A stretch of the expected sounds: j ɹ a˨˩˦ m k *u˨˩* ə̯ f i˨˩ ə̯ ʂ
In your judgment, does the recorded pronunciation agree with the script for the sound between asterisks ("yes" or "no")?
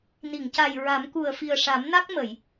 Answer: yes